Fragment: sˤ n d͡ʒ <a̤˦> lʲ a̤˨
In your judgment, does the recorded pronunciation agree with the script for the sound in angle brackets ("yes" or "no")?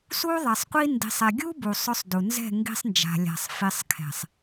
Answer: no